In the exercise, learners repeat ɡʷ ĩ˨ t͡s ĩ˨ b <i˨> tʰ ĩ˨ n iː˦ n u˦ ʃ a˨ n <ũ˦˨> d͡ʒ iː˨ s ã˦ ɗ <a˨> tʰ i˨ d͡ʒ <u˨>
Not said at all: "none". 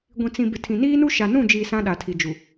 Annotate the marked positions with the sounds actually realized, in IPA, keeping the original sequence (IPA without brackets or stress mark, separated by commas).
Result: ɪ˨, ũ˦˨, a˨, u˨